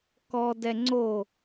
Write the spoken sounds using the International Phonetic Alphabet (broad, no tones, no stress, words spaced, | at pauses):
kɔ dɛŋ͡ǀo